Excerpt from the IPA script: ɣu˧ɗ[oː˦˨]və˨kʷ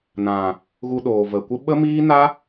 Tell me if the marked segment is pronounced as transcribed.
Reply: no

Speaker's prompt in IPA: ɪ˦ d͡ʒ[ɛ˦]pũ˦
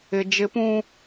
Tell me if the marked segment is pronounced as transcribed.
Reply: no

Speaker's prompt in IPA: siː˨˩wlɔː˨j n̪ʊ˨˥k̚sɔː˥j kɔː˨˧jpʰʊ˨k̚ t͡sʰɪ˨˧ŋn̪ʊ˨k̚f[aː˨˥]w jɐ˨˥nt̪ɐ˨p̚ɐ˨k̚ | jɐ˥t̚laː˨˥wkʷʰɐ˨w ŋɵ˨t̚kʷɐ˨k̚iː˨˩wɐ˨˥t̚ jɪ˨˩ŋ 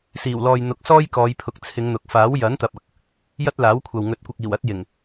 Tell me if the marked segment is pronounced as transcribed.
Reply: yes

